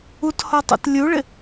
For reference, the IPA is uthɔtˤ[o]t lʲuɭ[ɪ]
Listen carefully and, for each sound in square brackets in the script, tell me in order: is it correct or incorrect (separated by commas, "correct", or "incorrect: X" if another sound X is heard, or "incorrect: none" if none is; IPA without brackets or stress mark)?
incorrect: o̰, correct